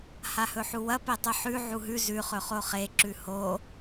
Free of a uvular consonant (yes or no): no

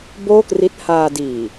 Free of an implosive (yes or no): yes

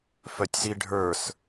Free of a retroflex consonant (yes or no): no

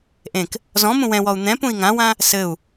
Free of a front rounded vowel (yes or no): yes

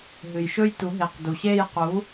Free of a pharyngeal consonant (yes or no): yes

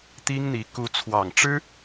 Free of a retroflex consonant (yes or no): no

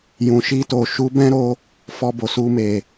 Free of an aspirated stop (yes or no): yes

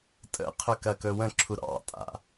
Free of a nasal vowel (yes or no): no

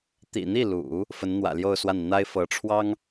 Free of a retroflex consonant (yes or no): no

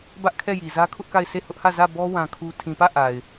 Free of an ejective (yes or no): yes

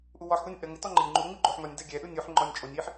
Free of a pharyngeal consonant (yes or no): no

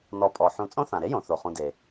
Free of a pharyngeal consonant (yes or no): no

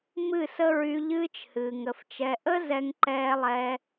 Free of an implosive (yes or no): yes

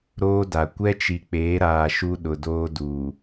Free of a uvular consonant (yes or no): yes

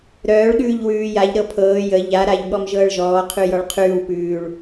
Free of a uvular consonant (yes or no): no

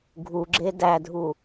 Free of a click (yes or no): no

